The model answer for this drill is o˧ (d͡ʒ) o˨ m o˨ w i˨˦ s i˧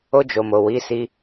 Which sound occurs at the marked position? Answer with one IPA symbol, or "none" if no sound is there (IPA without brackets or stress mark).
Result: d͡ʒ